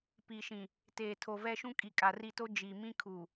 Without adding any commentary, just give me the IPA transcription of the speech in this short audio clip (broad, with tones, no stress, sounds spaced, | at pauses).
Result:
p i˨ ʃ ĩ˨ | t eː˨ tʰ o˨ v ɛ˦ ʃ ũ˦ kʼ i˨ kʼ a˨ r i˦˨ t o˦ d͡ʒ i˨ m ĩ˦ kʰ u˨